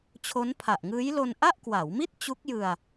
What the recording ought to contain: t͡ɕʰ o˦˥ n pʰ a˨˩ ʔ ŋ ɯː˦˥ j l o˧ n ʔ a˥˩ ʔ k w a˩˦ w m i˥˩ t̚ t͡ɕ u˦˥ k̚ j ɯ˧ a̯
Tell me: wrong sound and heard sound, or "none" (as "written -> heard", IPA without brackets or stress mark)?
none